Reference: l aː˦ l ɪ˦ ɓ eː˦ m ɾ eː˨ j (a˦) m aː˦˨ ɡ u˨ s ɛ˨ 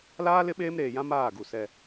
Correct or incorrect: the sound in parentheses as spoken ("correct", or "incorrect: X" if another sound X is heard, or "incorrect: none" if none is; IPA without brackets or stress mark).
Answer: incorrect: ã˦